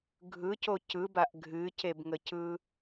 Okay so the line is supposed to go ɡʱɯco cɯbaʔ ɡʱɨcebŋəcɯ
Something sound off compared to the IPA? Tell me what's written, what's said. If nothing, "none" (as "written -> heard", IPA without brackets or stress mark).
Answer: none